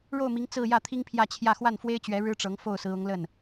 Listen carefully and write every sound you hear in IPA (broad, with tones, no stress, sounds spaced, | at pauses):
ɻ o˥˩ ʊ̯ m i˧˥ ŋ t͡s ɹ̩˥˧ j ä˥˩ t̪ʰ i˥ ŋ pʰ j ä˥˧ t͡ɕʰ j ä˥˧ x w a˥˩ n f w e˥ ɪ̯ t͡ɕ ɥ ɛ˧˥ ɻ ɻ̩˥ ʈ͡ʂ ɤ˧˥ ŋ f o˥˩ ʊ̯ s ɹ̩˧˥ ʊ˧˥ ŋ l ə˥˩ n